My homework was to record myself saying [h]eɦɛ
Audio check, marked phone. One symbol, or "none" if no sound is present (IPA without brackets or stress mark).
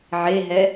ʕ